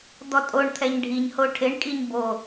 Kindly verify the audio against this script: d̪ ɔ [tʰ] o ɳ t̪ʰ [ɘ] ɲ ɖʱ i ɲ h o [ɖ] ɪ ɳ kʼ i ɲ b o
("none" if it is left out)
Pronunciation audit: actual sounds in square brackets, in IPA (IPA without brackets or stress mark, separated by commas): tʼ, ɛ, ʈʰ